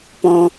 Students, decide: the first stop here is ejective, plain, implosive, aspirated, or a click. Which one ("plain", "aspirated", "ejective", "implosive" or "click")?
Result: plain